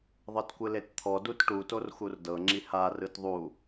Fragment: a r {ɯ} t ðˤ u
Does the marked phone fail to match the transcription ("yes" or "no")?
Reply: no